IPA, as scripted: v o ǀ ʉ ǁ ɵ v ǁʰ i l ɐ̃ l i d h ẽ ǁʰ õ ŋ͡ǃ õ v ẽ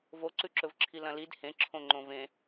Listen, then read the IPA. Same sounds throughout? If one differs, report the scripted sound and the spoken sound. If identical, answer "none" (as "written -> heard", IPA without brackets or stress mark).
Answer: none